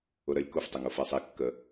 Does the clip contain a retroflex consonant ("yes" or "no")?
no